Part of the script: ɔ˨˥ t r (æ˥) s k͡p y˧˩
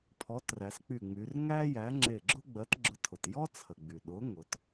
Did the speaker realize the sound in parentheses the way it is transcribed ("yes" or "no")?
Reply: no